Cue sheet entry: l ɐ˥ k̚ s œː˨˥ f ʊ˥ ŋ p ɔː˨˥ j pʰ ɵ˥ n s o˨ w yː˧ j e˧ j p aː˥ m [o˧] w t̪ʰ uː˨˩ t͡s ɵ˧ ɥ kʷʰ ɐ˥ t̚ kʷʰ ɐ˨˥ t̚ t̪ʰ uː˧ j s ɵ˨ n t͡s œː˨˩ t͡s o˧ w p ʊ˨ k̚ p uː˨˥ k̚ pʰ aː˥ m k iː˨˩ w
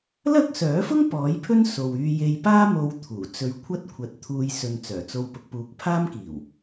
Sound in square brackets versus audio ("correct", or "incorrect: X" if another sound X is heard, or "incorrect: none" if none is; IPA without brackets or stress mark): correct